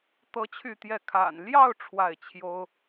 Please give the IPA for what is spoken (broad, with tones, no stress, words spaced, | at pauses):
t̪ɤ˥t͡ɕʰy˥˧t̪jɛ˥˩ kʰa̰˨˩nljɑ˥˧ʊ̯ ʈ͡ʂʰwa˥˩ɪ̯t͡ɕʰjo˥ʊ̯